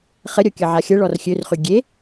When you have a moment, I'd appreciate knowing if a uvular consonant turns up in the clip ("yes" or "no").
yes